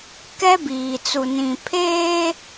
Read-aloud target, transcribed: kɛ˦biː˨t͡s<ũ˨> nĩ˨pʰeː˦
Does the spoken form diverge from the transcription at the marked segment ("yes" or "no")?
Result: yes